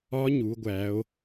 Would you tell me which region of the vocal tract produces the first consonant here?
palate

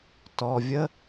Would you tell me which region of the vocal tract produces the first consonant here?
tongue tip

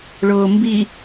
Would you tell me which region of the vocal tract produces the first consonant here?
retroflex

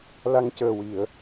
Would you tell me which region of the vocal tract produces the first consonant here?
tongue tip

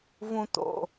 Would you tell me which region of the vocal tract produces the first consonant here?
lips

